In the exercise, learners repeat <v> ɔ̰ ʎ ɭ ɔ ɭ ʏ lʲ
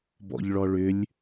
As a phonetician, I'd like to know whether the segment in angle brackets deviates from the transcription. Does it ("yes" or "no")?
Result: yes